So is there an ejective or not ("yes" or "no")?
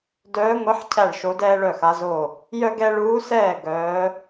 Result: no